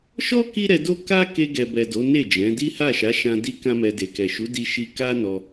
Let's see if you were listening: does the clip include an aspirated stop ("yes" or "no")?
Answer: no